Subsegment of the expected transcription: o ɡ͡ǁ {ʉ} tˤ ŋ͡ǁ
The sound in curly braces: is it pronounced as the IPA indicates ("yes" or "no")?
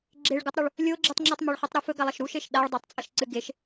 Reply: no